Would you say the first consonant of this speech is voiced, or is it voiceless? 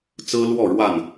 voiceless